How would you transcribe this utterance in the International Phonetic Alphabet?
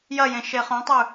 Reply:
j ɐ j ẽ ʃ e χ õ tˤ ʉ

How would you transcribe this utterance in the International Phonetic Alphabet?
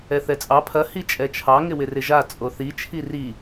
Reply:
ɛ θ ɛ t͡sʼ ɑ pʰ ɐ h i t͡ʃʼ ɛ t͡ʃʰ ɑ ŋ ɪ w ɪ r ɪ ʒ a t͡sʼ o θ i t͡ʃʰ i r i

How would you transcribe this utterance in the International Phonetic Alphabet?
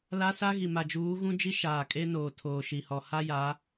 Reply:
l a˦ s a˦ ɣ i˨ m a˨ d͡ʒ uː˨˦ ɣ ũ˦ d͡ʒ i˦ ʃ aː˨ kʼ e˦ n oː˨ tʰ oː˨ ʃ i˨ h ɔ˨ h a˦ j a˨˦

